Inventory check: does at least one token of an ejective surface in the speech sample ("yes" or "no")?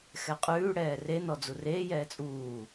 yes